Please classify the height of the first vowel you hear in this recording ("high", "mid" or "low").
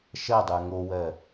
low